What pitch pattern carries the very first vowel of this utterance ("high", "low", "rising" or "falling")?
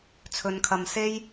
low